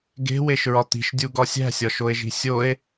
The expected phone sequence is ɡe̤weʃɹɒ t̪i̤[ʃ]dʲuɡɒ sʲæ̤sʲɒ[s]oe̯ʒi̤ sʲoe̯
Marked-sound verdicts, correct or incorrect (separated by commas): correct, incorrect